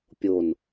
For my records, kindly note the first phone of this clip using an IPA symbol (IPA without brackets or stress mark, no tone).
pʲ